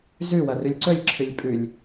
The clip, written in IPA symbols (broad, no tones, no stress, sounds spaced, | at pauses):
z ʉ w ɐ r ʉ lʲ ǀ ɵ lʲ ǁʰ ɨ lʲ pʼ ʉ lʲ